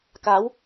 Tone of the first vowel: rising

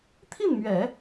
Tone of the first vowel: falling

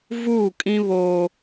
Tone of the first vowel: falling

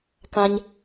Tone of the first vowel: low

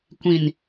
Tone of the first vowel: low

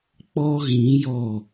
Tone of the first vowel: high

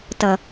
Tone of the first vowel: low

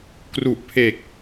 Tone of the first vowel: low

